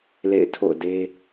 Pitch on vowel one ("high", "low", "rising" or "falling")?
falling